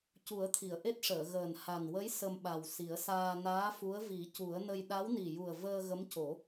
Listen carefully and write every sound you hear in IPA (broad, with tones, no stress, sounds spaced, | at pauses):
c u˨˩˦ ə̯ t̪ʰ i˨˩˨ ə̯ ʔ e˦˥ t̚ ʂ əː˨˩˨ ɣ əː˨˩ n h a˨˩ n w ə˧˥ j s ə˧ m ɓ a˨˩ w s i˨˩˦ ə̯ s aː˧ n aː˧˥ f u˧˥ ə̯ v i˨˩˦ c u˨˩˦ ə̯ n ə˧ j ɗ a˧˥ w n i˨˩ j u˨˩ ə̯ v əː˧ ɣ ə˧˥ m c o˨˩˦